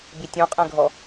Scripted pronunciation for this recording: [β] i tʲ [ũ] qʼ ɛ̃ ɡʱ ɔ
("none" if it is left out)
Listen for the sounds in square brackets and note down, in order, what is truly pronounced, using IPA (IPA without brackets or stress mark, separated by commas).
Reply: b, ũ